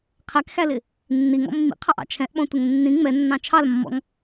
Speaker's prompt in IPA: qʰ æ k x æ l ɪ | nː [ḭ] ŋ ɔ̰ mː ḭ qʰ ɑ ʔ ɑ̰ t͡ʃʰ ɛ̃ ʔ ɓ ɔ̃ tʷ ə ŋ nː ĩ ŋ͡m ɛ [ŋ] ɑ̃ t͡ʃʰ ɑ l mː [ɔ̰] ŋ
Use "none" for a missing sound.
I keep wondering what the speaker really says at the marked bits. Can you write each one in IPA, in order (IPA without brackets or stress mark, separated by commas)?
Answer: i, nː, ɔ̰